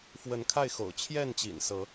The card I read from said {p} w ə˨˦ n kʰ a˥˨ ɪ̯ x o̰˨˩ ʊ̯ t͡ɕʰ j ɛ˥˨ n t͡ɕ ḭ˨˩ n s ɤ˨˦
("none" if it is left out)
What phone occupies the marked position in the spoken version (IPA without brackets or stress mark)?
f